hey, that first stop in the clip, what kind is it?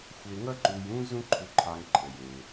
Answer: click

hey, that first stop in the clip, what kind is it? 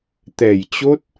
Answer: plain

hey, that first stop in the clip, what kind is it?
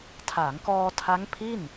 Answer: aspirated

